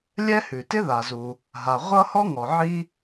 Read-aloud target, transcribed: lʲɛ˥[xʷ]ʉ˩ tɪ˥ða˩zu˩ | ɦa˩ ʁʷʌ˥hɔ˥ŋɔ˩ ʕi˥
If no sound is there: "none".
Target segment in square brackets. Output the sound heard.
h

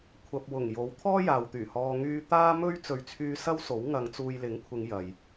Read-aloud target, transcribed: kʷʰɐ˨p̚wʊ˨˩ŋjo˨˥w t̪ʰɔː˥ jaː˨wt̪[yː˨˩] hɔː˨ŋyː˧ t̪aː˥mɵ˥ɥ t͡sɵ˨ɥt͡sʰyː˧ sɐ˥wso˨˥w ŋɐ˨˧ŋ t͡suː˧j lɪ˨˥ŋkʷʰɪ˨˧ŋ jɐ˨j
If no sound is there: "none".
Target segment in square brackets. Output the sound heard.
yː˨˩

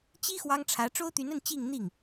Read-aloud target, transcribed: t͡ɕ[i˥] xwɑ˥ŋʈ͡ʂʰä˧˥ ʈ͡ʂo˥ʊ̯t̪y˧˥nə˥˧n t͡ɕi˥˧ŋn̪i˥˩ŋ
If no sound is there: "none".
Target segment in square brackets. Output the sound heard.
i˥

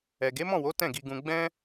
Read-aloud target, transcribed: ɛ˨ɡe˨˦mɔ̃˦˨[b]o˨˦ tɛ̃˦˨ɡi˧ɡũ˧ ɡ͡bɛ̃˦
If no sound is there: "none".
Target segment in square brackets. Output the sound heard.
w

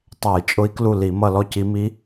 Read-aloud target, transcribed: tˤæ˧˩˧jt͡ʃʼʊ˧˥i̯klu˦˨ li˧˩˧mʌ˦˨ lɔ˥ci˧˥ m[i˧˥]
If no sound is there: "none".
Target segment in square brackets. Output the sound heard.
i˧˥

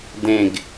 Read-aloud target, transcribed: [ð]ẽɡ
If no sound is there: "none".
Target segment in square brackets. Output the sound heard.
d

